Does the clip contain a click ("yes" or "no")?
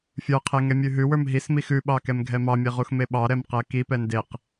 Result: no